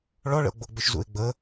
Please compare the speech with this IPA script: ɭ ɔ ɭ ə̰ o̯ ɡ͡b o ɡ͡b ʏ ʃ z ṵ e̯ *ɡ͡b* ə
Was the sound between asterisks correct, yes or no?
yes